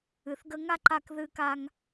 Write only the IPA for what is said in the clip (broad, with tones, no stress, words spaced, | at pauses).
ɨ˩θɡə˧ ŋa˥ǃa˧k ðɨ˧ka˧ŋ